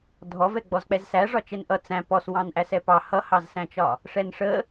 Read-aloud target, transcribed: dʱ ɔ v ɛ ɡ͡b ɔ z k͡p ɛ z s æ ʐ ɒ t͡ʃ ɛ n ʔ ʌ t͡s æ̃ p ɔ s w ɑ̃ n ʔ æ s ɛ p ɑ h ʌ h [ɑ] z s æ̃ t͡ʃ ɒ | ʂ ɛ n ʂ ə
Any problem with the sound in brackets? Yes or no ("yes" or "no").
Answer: no